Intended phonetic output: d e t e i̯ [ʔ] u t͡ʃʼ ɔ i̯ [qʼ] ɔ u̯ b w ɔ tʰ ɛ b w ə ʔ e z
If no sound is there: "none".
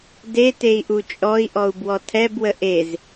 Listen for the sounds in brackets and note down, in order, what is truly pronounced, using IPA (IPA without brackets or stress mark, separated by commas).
ʔ, ʔ